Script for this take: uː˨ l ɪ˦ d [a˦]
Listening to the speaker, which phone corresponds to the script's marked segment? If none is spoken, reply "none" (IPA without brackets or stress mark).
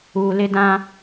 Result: ã˦